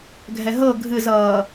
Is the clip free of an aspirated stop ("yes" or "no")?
yes